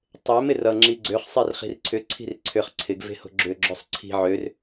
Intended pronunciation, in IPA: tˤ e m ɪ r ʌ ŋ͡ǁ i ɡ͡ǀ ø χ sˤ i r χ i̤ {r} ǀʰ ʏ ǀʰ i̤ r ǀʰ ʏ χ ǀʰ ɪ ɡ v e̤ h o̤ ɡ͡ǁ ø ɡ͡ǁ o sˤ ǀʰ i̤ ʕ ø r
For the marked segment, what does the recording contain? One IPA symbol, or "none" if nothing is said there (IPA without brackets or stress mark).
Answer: r